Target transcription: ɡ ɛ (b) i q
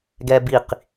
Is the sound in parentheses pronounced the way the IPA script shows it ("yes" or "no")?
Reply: yes